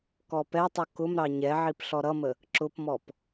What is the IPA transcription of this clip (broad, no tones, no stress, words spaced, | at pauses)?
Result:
kɔpɛtˤu kʊmɾɑ ɲɛʕip ɬɔɾʌmə | ǁʊpmɔp